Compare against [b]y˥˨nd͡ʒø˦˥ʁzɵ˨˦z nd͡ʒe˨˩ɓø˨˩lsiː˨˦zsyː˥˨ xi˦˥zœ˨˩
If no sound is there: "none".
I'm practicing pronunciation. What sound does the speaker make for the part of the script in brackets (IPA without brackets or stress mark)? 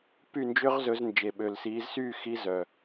p